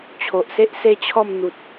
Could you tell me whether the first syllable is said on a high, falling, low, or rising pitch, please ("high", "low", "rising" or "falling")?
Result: low